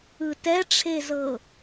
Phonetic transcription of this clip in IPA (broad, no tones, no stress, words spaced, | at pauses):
ɯtɛʈ͡ʂʰezɤ